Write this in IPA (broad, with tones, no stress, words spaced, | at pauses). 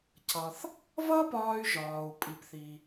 cʰʌ˩θ | vʌ˥pɒː˧y̯ʒɒː˩u̯ pʼi˩pθi˩